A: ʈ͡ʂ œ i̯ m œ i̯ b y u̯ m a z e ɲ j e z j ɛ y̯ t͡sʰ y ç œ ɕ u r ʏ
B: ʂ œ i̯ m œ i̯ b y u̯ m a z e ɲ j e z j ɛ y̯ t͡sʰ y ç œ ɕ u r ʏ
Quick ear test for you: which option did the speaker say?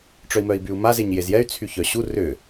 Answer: A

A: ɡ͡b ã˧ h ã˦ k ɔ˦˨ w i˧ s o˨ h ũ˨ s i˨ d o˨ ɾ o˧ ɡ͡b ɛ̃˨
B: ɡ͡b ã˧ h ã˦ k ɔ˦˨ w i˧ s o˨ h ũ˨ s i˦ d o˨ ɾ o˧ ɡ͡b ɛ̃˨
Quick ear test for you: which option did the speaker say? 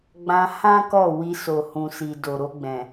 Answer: A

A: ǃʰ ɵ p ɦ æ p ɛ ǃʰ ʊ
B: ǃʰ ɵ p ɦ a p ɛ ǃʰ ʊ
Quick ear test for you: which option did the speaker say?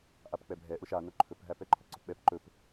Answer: A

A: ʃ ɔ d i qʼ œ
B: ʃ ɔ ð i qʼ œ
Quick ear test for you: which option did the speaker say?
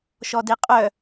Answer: A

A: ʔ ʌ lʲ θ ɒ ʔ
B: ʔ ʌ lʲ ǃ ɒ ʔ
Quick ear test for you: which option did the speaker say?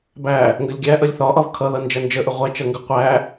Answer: A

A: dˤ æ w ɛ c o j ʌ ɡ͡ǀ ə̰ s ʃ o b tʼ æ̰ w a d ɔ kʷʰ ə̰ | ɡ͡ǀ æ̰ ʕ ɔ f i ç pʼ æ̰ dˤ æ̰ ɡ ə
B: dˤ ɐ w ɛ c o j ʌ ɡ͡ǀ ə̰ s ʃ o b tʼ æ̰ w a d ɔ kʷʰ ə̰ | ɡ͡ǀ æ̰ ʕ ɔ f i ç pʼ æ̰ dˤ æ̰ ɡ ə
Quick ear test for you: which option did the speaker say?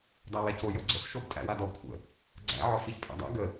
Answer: A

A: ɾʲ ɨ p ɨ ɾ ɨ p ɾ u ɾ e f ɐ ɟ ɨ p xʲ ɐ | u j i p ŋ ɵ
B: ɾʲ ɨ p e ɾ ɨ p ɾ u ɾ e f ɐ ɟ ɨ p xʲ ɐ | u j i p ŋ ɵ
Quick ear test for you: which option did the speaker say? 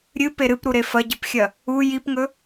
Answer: B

